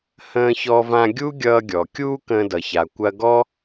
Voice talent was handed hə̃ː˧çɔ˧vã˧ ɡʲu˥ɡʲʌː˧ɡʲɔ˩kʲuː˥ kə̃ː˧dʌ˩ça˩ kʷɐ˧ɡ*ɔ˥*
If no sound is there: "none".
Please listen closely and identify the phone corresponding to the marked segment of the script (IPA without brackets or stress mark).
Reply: ɔ˥